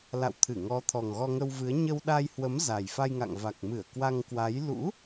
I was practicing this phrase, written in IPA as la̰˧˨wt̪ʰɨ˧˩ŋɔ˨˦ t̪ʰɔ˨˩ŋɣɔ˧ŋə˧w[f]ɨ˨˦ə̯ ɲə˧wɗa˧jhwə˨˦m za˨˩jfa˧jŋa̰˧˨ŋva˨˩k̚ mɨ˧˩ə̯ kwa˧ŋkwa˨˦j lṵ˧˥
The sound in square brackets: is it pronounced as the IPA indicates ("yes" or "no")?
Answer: no